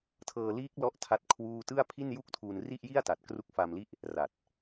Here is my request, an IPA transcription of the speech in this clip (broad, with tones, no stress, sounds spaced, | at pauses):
tʰ ɤː˧ l iː˦˥ k̚ l ɔ˥˩ ʔ tʰ a˥˩ t̚ kʰ w uː˥˩ t ɯ˥˩ a̯ pʰ i˥˩ n j u˥˩ k̚ tʰ uː˧ n r i˥˩ ʔ j i˥˩ a̯ t a˨˩ t̚ k r u˦˥ k̚ f a˧ m l i˥˩ ʔ | r a˨˩ t̚